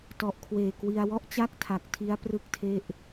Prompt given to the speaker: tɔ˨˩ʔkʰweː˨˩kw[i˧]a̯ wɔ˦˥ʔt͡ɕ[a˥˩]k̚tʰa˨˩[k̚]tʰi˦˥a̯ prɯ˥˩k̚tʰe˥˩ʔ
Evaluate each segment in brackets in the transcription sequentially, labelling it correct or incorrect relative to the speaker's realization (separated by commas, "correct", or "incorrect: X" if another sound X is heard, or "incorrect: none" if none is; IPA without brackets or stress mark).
correct, correct, correct